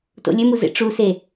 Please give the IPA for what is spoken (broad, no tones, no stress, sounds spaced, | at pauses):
t o̰ lʲ ɵ m u z ḛ ʈ͡ʂ u s e